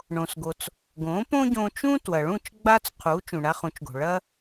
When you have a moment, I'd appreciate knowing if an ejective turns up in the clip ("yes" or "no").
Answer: no